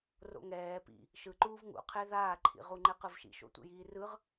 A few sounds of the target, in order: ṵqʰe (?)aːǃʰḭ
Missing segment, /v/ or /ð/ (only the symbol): ð